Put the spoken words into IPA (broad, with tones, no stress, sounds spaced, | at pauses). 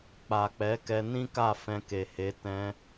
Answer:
k͡p a˨ k͡p ɛ˨˦ k ɛ˧ n ĩ˦ k a˦˨ f ɛ̃˧ k e˨ h e˨˦ t ɛ̃˧